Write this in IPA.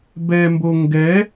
b ɛ m b o ŋ ɡ ɛ

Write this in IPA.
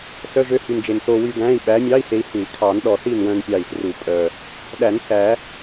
s œ˧˥˧ ʒ ø˧˥ h y˨˩ n d͡ʒ e˨˩ n θ o˧ w y˧ ɡ æ̃˧˥˧ i̯ ɓ æ˧˥ mʲ ɑ˧˥˧ i̯ h e˧ i̯ h ʉ˨˩˦ i̯ kʰ ɑ˨˩˦ n ɗ ɔ˨˩ θ i˥˨ n w œ̃˧ n pʲ ɑ˨˩ i̯ f r u˨˩˦ pʼ œ˨˩ | ɗ æ˨˩˦ n θ æ˨˩˦

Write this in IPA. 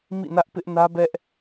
m ḭ˦˨ n ä˦ ʔ p ɪ˦ ʔ n ä˦ b ɛ˦ ʔ

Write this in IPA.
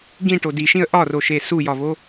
ɡ ĩ ʈ o d i ʃ ĩ ə̯ ʔ ɒ r o ʃ e s u j ɒ v o

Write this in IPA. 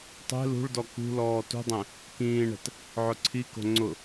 tˤ e̤ l ṳ ɭ d ɔ k ṳ l ɔː t ṳ dˤ ɛ̃ | k ĩː ɳ ɛ̤ t | ʕ ʊ ǀʰ i k o̤ ŋ͡ǀ ʊ

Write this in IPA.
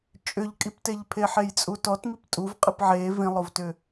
t͡ʃʼ ʏ ʎ kʼ i p t e ʎ pʰ e ħ e j t͡sʼ u t ɔ t m i p tʼ u v qʼ ɨ p ʕ e v ĩ lˠ o v t ʏ

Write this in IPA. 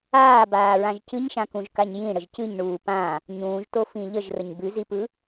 aː b aː ɹ ã ʒ c ɨ ɲ ʃ ã k ũ ʒ k a ɲ j ĩ ɽ ə ʒ c ɨ ɲ ɳ uː p ã | ɲ ũː ʒ t o f ĩ ʎ ə ʒ r ə ɲ b ʉ z i p ɯ

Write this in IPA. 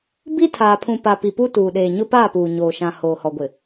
b i˦ tʰ aː˨ pʰ ũ˨ p a˨ p i˨ p u˦ t uː˨ ɗ eː˨ ɲ ʊ˦ p aː˦˨ p uː˨ ɲ oː˨ ʃ ã˨ h oː˨ h ɔ˨ ɡʷ ɪ˨

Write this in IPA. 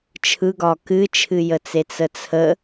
t͡ʃʰ ɯ ɡ ɒ k ɨ t͡ʃʰ ɨ j ə t͡s e t͡s ə t͡sʰ ə

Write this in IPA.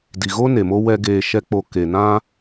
d i˨ ɣ o˦ n e˨ m o˦ w ɛ˦ ɡ eː˧ ʃ ɛ˦ k͡p o˧ k e˨ n ã˦

